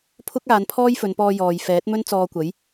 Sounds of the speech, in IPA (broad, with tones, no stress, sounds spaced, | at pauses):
pʰ ʊ˥ k̚ aː˨˧ n pʰ ɔː˥ j f ɵ˨˧ n p ɔː˧ j ɔː˨ j f ɛː˨˥ t̚ m ɵ˥ n t͡s ɔː˧ kʷ ɐ˨˥ j